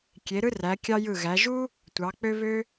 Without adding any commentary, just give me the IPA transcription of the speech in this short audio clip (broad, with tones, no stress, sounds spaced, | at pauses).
kʲ e˨˦ ɾ ɯ˥ r æ˨˦ kʲ ɑ˥ j ɯ˦˨ ɣ æ˨˦ ʒ u˥ | tʷ ɑ˨˦ k͡p ø˥ β ø˥